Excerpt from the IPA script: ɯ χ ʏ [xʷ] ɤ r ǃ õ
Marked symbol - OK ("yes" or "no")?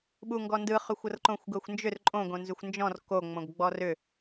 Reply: yes